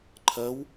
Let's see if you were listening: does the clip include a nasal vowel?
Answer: no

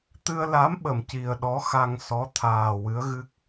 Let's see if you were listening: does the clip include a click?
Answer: no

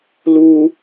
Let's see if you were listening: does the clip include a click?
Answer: no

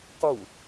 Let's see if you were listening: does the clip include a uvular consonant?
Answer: yes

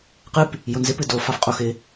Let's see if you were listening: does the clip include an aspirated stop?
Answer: no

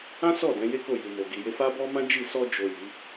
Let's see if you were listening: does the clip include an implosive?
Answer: no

